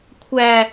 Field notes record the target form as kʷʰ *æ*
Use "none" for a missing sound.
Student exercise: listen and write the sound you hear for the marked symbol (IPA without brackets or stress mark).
æ